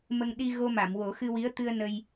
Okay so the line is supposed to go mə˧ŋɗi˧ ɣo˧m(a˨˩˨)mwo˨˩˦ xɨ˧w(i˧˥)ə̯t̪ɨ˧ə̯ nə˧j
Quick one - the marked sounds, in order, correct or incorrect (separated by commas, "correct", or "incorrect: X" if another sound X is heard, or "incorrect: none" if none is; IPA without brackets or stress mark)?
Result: correct, correct